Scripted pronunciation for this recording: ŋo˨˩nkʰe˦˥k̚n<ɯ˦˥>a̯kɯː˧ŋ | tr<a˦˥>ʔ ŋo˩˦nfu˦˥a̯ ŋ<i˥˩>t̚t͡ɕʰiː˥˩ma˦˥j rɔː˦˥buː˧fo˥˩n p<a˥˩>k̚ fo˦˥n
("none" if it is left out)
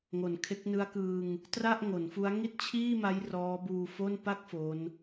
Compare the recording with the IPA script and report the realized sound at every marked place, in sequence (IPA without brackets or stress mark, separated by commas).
ɯ˦˥, a˥˩, i˥˩, a˥˩